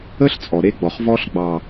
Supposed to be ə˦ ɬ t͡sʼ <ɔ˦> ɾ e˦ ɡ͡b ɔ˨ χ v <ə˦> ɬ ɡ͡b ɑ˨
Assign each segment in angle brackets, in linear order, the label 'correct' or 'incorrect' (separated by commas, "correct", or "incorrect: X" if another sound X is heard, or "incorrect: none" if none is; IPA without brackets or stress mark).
incorrect: ɔ˨, incorrect: ɔ˦